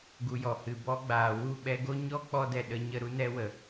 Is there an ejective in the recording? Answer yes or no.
no